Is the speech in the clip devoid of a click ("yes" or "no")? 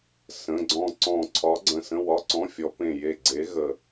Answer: no